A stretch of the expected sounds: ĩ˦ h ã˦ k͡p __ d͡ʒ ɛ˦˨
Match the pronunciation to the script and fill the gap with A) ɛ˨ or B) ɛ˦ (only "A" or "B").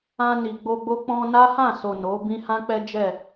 B